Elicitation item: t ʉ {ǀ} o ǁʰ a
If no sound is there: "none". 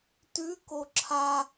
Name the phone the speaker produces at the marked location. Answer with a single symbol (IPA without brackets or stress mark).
k